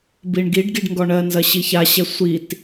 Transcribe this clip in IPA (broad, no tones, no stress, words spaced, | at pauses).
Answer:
biɳɡiɖɡiɖ ŋɡɔɳɜnzɐ ɕiçaɕɛ sʷit